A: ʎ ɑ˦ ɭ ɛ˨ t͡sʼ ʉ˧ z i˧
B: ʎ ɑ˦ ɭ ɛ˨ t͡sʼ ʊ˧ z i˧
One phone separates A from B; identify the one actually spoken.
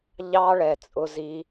B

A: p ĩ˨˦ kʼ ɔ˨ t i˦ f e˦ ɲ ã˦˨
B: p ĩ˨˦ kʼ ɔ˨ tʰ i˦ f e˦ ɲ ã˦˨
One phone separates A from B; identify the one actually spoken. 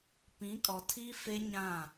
B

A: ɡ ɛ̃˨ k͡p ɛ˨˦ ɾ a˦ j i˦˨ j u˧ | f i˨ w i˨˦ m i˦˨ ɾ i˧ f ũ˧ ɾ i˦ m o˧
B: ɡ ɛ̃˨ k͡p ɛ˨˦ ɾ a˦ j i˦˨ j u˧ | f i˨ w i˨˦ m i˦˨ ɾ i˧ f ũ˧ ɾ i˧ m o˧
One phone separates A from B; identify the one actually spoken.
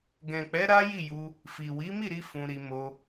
B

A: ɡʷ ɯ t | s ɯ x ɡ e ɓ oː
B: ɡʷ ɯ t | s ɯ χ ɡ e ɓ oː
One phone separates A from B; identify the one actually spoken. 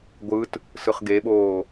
B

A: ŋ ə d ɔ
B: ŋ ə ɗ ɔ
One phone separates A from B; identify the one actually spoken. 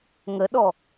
B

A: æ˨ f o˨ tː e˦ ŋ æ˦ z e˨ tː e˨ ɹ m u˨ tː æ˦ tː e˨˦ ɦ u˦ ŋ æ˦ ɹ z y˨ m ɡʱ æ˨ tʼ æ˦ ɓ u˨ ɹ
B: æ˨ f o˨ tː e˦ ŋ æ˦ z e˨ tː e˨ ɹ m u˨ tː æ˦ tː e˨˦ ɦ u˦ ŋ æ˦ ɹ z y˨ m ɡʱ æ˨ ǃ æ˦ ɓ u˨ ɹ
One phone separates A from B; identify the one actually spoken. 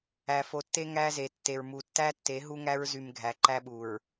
B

